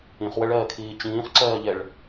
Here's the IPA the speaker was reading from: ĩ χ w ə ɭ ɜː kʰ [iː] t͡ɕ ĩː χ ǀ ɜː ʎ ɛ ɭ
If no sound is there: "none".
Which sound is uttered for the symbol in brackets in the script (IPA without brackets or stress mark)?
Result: iː